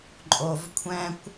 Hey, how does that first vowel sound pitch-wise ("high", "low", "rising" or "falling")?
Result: low